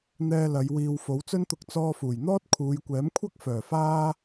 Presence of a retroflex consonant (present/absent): absent